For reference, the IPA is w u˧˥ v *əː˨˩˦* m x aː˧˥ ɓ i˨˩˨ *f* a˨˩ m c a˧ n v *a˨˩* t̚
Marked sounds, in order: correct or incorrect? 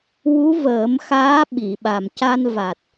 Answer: correct, incorrect: ɓ, correct

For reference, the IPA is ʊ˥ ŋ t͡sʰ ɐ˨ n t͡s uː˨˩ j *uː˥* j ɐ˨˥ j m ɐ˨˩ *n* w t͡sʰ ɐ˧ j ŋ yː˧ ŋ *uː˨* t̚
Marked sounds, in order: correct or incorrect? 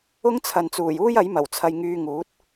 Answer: correct, incorrect: none, incorrect: uː˨˥

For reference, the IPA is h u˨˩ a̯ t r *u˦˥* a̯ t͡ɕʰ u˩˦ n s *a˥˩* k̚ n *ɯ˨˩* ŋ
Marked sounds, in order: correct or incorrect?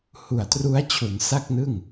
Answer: correct, correct, incorrect: ɯ˥˩

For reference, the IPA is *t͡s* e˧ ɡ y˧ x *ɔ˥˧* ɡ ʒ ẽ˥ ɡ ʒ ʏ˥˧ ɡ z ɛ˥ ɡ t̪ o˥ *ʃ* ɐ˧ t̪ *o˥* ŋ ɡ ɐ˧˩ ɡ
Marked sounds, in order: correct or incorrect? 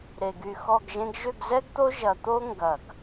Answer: incorrect: ɾ, correct, incorrect: ʒ, correct

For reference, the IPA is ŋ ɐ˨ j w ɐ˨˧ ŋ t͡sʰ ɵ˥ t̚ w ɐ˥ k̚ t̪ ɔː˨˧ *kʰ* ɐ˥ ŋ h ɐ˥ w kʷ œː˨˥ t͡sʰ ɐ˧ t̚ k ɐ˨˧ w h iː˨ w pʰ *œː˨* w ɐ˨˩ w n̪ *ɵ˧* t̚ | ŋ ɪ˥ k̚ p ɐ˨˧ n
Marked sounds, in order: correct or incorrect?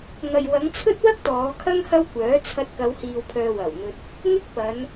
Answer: correct, correct, correct

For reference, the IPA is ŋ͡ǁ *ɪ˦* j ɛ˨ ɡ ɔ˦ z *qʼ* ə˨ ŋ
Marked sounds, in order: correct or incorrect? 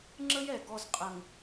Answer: incorrect: ə˦, correct

